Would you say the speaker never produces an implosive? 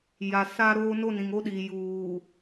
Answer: no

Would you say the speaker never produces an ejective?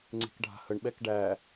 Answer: yes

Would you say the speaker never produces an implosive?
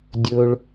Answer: yes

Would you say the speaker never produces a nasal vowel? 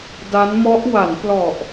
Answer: yes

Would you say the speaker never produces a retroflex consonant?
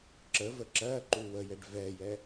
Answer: no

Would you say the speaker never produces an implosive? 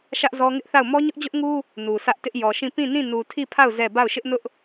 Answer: yes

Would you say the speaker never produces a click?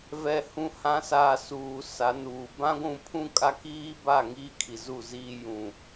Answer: yes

